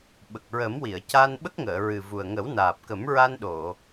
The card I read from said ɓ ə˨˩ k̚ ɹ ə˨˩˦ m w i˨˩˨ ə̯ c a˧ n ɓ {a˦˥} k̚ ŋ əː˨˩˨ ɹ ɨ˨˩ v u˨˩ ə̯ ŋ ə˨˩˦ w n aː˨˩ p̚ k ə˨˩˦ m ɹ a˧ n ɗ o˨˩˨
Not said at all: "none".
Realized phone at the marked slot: ə˦˥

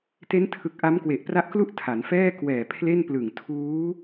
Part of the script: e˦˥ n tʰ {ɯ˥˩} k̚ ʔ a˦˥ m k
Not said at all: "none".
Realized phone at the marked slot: ɯ˨˩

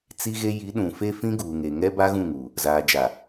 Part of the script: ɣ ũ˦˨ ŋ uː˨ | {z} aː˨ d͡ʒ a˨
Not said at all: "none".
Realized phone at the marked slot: z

